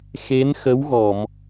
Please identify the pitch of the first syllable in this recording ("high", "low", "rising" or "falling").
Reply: rising